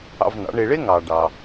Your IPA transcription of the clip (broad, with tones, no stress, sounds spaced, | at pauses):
ɑ̰˧ v n ɑ̰˩˥ ɳ e˧ ɭ e˥ ŋ ɑ˩ ɖ ɑ˩